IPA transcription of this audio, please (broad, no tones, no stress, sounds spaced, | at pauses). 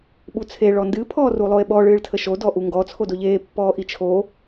ɓ u t͡sʰ e ɭ ɔ n d ɨ pʰ ɔː r u lˠ o e̯ ɓ ɔ ɭ ɨː ɭ tʰ ə ʃ o d ɔ ʔ u ŋ ɡ ɔ t͡sʰ o d o ʎ eː pː ɔː ʔ i t͡ʃʰ o